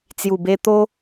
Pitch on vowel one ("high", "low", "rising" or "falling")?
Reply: low